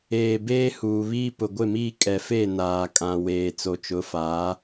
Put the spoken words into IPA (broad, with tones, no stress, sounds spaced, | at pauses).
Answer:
eː˨ b eː˦ h uː˨ β iː˦ p ʊ˨ ɡʷ ɪ˦˨ m iː˦ kʼ ɛ˨ f e˦˨ n aː˨ kʼ ã˨ w eː˨ t͡s o˨ t͡ʃ ʊ˨˦ f aː˨˦